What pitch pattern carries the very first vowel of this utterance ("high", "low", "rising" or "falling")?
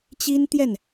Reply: high